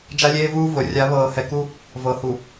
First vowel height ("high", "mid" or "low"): low